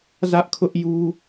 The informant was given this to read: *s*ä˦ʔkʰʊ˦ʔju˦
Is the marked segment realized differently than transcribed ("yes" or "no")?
yes